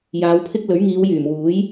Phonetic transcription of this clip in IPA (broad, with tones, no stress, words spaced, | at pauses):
jaː˨˧wpʰɪ˥k̚ lɵ˨˥ɥŋiː˨˧wjyː˨˩mwuː˨˥j